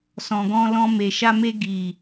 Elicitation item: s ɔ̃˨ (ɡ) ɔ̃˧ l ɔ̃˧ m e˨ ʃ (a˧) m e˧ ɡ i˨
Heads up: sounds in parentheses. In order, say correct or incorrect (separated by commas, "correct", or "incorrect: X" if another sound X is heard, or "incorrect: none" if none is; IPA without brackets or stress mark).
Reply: correct, correct